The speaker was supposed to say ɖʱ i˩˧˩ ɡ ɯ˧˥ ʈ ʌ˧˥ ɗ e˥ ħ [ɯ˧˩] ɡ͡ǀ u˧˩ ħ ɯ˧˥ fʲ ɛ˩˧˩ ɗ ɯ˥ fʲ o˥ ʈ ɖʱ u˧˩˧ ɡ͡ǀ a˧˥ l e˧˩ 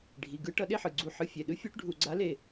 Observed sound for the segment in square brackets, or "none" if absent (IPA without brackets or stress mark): ɯ˩˧˩